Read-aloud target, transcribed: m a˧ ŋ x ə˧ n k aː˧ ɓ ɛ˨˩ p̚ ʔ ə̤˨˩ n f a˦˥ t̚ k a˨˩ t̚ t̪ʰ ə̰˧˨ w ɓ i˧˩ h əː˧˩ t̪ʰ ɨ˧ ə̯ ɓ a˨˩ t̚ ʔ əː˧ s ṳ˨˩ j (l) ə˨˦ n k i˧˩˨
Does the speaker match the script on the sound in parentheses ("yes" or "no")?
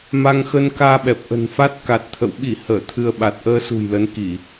yes